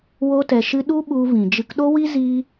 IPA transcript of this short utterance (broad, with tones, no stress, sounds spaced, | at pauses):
w o˦ t ɛ˧ ʃ ɨ˦ ɗ u˦ ɓ u˧ v ĩ˨ d͡ʒ ɨ˧ k ɗ o˦ w i˦ z i˧